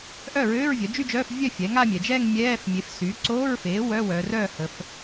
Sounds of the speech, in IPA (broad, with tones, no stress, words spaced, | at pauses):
ʔœ˥˩ɹøː˧˥˧ɹ vʲœ˩˥d͡ʒy˥˧d͡ʒœː˧˥˧f vʲœ˥˩ fʲɛ˩˥ŋa˥˧mʲɛ˩˧d͡ʒɛː˥˧ŋ mʲɛː˧˥˧f mʲe˩˥fsy˩˥ ǀoː˧˥˧ɹfeː˩˥ wœ˧˥˧wœː˩˧rœː˥˩hə˩˧f